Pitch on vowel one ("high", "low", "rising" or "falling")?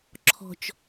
low